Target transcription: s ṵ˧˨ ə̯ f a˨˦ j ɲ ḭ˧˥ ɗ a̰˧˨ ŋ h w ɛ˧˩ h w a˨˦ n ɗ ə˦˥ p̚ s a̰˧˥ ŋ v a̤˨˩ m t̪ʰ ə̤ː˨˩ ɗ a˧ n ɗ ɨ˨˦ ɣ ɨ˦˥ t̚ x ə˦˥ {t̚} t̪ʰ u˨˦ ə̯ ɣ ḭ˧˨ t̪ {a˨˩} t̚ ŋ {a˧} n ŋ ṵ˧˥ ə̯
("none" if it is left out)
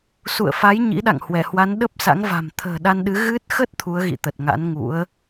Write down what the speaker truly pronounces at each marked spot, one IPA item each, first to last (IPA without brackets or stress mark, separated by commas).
t̚, ə˨˩, a̰˧˥